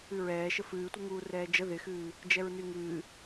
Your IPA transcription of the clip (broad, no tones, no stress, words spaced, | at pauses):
ɨɹɛː ʃəfɨːtʷəŋuː rɛːd͡ʒə ðɪxɨː | d͡ʒɛɹnyŋɨː